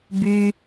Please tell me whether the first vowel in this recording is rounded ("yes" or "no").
yes